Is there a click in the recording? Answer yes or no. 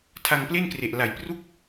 no